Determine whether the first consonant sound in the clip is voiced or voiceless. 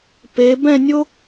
voiceless